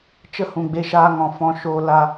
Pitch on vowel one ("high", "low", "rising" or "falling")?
high